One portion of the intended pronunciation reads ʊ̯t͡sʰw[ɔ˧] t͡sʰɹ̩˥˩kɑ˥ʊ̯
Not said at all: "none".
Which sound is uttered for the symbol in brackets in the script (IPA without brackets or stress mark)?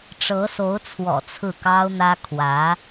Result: ɔ̰˨˩